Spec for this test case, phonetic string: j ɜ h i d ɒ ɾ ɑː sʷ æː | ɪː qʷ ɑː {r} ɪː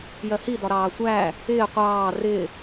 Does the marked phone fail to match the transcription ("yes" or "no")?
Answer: no